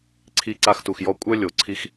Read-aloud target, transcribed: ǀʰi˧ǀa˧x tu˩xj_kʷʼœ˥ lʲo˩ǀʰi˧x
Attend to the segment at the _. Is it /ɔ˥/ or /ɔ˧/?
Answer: ɔ˧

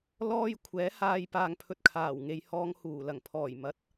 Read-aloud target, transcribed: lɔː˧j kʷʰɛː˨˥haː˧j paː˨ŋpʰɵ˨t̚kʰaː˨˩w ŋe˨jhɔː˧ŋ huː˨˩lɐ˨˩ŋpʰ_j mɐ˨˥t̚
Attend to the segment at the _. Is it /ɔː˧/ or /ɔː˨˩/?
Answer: ɔː˨˩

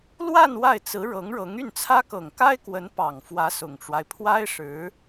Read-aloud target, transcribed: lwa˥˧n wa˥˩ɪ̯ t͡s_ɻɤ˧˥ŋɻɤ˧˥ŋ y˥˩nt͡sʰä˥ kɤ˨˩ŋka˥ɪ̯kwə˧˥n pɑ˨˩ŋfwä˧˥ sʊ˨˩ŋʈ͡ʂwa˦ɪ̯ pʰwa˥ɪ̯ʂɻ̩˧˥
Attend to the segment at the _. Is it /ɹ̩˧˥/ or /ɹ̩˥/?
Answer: ɹ̩˧˥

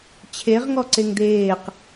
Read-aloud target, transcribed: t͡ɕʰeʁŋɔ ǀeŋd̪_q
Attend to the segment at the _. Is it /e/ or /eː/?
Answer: eː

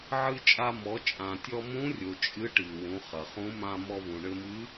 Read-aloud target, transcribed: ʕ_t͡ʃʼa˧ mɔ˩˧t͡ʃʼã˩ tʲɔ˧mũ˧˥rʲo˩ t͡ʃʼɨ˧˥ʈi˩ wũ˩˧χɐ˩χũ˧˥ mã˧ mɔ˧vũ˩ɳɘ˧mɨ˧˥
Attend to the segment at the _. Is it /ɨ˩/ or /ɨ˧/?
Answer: ɨ˧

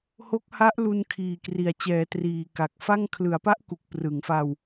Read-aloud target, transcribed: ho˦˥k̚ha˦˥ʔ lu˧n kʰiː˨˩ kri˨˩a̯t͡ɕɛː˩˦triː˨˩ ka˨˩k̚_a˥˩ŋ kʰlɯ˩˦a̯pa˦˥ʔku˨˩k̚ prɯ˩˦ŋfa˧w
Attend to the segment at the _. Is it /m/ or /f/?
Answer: f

